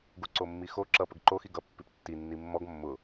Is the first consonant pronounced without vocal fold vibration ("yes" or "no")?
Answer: no